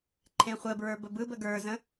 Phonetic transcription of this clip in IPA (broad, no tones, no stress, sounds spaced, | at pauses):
ǃʰ ẽ χʷ ə b ɹ ə˞ b ə b ɯ b ə ɡ ə˞ z ə̃